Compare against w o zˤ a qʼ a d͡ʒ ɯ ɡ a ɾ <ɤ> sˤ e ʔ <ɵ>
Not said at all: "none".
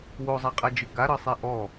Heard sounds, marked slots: ɤ, ɔ

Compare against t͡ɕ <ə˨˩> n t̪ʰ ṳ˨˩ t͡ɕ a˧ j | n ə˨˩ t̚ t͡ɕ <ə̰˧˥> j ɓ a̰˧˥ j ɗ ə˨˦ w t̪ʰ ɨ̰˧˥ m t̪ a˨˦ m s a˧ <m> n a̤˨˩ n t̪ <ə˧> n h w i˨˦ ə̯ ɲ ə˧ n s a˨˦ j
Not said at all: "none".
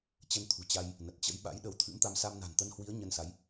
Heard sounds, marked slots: ə˧, ə̰˧˥, m, ə˧

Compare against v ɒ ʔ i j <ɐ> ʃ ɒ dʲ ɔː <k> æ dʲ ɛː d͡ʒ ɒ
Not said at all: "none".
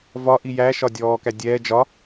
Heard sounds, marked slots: æ, k

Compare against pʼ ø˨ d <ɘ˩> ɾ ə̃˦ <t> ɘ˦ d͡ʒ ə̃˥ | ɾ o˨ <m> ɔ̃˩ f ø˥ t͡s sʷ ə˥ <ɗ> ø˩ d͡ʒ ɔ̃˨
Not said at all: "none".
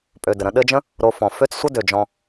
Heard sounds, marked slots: ɘ˩, ɗ, f, d

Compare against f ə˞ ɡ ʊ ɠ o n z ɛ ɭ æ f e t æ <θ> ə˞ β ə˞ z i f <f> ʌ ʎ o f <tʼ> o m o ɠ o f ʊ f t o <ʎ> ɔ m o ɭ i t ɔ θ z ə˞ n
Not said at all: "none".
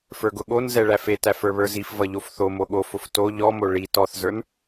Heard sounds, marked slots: f, v, θ, ʎ

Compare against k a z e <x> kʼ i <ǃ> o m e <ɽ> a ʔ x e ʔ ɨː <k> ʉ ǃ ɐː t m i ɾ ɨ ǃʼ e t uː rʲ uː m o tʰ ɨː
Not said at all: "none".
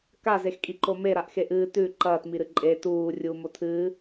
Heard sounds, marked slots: x, ǃ, ɾ, t

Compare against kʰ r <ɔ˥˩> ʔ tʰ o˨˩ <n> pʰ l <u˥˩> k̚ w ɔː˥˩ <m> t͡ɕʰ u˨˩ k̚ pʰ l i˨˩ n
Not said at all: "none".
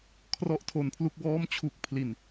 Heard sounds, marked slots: ɔ˥˩, n, u˥˩, m

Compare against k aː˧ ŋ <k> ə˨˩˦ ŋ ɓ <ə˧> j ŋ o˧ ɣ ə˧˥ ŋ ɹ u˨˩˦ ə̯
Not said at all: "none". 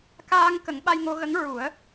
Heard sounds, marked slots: k, a˧

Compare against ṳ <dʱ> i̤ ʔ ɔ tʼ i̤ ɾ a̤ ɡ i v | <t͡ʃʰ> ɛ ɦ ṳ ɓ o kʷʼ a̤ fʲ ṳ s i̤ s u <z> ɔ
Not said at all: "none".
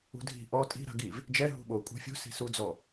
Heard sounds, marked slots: dʱ, d͡ʒ, d͡z

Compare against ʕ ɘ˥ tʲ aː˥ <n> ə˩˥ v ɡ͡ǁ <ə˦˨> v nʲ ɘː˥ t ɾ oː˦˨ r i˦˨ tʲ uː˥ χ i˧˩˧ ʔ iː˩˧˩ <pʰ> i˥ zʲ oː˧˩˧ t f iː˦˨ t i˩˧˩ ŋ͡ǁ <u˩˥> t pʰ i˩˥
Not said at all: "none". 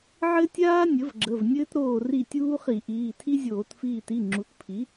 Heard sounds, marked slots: nʲ, ə˩˧˩, tʰ, u˩˥

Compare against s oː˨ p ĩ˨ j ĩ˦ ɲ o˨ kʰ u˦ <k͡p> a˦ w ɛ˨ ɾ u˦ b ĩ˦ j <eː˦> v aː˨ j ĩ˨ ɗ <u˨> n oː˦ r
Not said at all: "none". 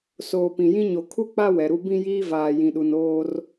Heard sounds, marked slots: k͡p, iː˦, u˨

